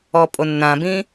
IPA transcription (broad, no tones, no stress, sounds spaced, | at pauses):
ɔ pʼ o nː ã b ĩ